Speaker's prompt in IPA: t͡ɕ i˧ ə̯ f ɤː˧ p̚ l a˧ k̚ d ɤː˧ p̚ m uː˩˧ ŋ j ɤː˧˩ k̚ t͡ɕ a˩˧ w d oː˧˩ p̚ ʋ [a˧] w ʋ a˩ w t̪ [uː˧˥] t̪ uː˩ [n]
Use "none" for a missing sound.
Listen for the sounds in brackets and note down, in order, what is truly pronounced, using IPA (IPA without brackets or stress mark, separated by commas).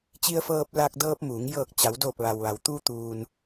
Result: a˩, uː˧, n